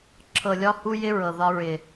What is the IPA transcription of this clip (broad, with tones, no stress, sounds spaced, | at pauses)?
ǁʰ ɤ˨ lʲ ɒ˦ h u˦ j ɪ˦ ɹ ɤ˨ ð ɒ˦ ɹ ɪ˨